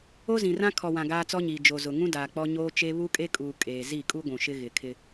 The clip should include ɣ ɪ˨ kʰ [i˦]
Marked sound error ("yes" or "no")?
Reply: yes